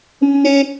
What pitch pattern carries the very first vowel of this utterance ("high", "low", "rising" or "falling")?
high